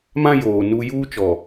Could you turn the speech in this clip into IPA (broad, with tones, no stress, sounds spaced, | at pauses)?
m ã˦ j oː˨ n u˦ j uː˦ t͡ʃ ɔ˨